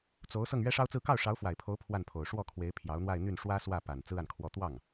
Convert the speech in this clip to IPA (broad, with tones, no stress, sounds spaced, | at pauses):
t͡s o˧˥ ʊ̯ s ɤ˥˩ ŋ ɥ ɛ˥ ʂ ɑ˥ ʊ̯ t͡s ɹ̩˥˧ k ɑ˥˩ ʊ̯ ʂ ɑ˧˥ ʊ̯ f w a˨˩ ɪ̯ pʰ o˧˥ ʊ̯ pʰ w a˥˩ n pʰ o˨˩ ʊ̯ ʂ w ɔ˥˩ kʰ w e˧˥ ɪ̯ pʰ j ɑ˧˥ ʊ̯ n̪ w a˥˧ ɪ̯ n̪ y˥˩ n ʂ w ä˥ s w ä˥˩ p a˨˩ n t͡s ɹ̩˥ a˨ n kʰ w ɔ˥˧ t̪ w ɑ˥˩ ŋ